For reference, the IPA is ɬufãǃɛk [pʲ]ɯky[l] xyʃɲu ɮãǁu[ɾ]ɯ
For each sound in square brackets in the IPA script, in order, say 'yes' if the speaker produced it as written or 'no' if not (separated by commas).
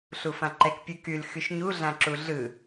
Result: yes, yes, no